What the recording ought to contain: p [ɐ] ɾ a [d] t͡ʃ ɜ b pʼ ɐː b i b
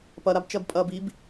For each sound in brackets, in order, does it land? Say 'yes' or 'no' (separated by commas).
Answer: yes, no